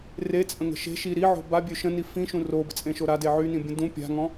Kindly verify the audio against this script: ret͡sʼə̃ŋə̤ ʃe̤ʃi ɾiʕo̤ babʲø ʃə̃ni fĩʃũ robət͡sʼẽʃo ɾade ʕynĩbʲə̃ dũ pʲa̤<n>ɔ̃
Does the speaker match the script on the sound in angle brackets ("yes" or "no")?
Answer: no